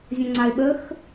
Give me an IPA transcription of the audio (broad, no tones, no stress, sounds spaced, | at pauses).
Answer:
zʲ ɔ̃ ŋ͡ǀ a ɪ̯ ɓ ə x